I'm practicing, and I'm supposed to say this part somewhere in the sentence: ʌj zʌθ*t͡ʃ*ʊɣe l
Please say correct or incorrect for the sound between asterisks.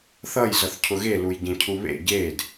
incorrect